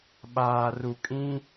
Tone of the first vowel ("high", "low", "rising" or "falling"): low